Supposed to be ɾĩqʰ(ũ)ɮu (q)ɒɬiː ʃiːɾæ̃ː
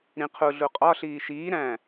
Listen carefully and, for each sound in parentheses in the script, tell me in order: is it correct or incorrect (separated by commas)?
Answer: incorrect, incorrect